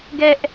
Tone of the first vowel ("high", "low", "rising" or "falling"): high